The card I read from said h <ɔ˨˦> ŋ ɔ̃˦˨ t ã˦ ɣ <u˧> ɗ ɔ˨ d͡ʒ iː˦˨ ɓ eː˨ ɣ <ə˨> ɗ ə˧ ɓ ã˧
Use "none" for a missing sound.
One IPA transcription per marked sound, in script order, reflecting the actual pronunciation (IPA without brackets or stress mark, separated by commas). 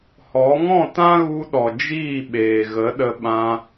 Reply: ɔ˨˦, u˧, ə˨˦